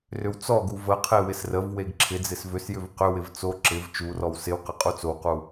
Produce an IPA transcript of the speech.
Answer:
r ʏ w t͡s ɔ ɡ u v ə qʰ e w ɪ s r ə v w e ɡ ǁʰ ɪ d͡z ɪ s v ʏ s j ʏ v q ʏ w ɪ v t͡s o ǁ ɪ v t͡ʃ u r ɔ w s ɪ w q ɪ qʼ u t͡s o w q u

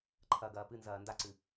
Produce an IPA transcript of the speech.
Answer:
ǃʰ ɐ ɡ ɐː p ɨ n z ɐː n d a ǀ ɨ

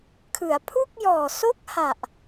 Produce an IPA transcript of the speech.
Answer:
kʰ ɯ˩˦ a̯ pʰ u˥˩ k̚ j ɔː˨˩ s o˥˩ k̚ h a˨˩ ʔ

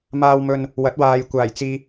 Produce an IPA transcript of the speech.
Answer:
m aː˨ w m ɵ˨ n | w ɐ˨˥ t̚ w aː˨ j kʷ aː˨˩ j t͡s iː˨

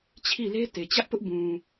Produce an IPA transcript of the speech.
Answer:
t͡ɕʰ i˦˨ l e˦ t e˨ t͡ɕ ä˦ ʔ p ʊ˦ ʔ b ũ˨

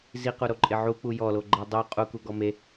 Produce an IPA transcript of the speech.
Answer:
z i q u ɾ o ǃʼ ɪ ʕ u k͡p u j ɔ l o ɡ͡ǃ ɛ dˤ u qʼ u k u ɡ ɔ m e

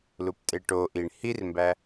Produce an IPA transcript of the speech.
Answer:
l u p tʼ e ʈ o ʔ i ɳ h i r m b æ

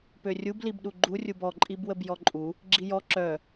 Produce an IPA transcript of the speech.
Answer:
p ø rʲ u b l i b ɗ u ɡ͡ǃ u rʲ u b ɔ ǃʼ i b w ə b j ɔ ǃʼ u | ɡ͡ǁ i j ɔ ǁ œ

